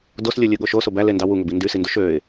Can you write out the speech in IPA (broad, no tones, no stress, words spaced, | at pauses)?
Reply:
doslʲulʲɯɠo ʃoso bælendɑ wuŋøbi ndysinduʃ øɪ̯